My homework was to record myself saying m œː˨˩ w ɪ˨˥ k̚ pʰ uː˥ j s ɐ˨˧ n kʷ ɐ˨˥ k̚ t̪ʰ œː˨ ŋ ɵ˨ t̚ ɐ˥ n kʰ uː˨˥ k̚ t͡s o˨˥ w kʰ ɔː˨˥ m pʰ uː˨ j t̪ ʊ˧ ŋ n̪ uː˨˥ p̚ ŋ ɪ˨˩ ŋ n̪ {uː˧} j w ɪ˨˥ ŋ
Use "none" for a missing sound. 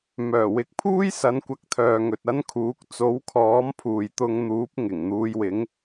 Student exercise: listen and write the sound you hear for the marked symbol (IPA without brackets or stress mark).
uː˧